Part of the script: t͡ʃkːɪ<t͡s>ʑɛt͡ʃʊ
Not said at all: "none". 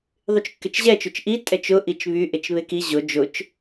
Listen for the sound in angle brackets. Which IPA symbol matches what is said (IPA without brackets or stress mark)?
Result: t͡ʃ